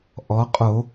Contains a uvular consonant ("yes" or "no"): yes